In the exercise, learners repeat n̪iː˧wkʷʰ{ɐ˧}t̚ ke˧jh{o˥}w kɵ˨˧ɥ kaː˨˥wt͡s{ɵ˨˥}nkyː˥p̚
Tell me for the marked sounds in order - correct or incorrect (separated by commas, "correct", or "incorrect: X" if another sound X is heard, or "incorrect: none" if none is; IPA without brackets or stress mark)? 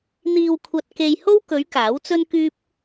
correct, correct, incorrect: ɵ˥